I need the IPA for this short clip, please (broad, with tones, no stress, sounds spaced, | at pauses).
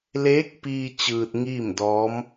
l eː˧˥ k̚ p iː˧ t͡ɕ ɯː˧ t̚ ŋ iː˥˨ m d ɔː˧˥ m